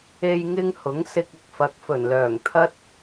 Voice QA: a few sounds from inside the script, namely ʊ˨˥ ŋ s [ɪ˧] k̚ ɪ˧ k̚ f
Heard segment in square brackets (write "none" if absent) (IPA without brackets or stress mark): ɪ˧